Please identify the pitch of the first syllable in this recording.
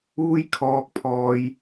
high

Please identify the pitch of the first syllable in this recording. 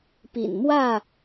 low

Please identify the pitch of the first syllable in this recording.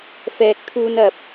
low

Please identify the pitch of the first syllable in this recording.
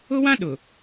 high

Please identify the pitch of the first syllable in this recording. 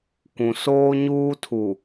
low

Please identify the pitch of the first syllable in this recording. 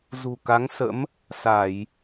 low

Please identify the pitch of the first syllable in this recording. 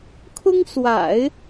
high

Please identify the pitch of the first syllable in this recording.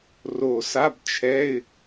low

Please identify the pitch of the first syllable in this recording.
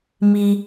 high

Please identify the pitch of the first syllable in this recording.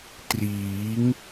rising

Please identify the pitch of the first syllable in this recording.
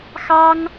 high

